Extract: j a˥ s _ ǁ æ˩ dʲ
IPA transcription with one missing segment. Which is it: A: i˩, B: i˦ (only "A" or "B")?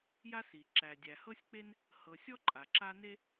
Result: A